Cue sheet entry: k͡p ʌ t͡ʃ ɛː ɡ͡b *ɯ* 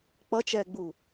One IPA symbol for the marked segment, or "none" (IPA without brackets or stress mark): u